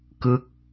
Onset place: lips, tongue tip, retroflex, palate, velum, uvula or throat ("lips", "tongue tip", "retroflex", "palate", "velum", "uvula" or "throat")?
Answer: velum